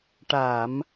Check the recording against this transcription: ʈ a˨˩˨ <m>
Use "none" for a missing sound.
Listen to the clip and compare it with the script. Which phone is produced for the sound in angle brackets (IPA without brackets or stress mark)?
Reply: m